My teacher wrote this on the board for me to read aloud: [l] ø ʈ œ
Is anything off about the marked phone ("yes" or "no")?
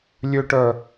yes